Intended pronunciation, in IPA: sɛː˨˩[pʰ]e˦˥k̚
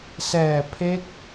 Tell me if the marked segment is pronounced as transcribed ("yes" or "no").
yes